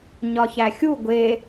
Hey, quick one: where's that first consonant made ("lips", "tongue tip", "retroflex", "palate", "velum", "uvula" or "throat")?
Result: palate